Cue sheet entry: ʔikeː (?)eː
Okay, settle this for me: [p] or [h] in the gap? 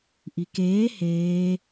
h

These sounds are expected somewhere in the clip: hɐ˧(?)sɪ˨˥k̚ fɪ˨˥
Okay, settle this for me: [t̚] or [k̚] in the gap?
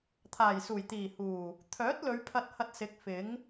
t̚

